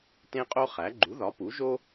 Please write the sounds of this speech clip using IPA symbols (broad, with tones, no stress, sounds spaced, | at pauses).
t ẽ˥ qʼ o˥ χ æ˨˥ ɡ͡ǃ u˨˥ ð ɒ˨˥ p u˨˥ ʒ o˥